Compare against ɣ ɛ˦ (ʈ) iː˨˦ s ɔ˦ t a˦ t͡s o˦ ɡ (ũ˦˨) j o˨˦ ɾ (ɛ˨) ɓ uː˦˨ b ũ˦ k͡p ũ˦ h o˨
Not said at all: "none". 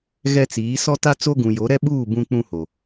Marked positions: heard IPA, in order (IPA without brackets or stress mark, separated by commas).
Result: t͡s, ũ˨, ɛ˦